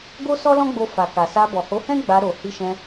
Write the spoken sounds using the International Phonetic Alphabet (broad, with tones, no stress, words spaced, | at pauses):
ɡo˦sɔ˦lɔ̃˦ɡ͡bo˧ fa˨ka˨sa˧ bɔ˨ho˨˦hɛ̃˦ ɡ͡ba˧ɾo˨ hi˧ʃɛ̃˧